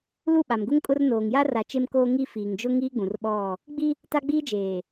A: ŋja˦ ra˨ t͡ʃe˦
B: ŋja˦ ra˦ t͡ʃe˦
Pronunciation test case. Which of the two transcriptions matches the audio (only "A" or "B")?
A